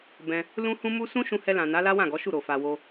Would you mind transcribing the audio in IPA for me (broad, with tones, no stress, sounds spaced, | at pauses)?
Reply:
b ɛ̃˧ | l ũ˦ h ũ˦ m u˦ s ũ˦ ʃ ũ˧ h ɛ˧ l ã˨ n a˨˦ l a˦ w ã˦˨ ɡ ɔ˨˦ ʃ u˦˨ ɾ o˨ f a˧ w o˧